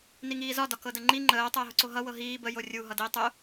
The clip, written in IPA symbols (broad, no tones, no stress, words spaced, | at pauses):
niŋiːzɒ dɒkɤdəŋ͡ǃi ŋ͡ǃəː tˤəːɦʊǀoɦʌ wɤɦiː bə jorʲu ɦʌdiːtˤʊ